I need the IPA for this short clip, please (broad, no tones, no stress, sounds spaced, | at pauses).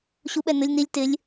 ɕ u ɓ ɛ n ʊ lʲ n i lʲ t ɪ lʲ